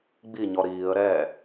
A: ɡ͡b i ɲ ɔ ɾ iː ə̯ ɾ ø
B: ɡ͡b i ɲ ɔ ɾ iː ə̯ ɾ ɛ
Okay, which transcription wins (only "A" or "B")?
B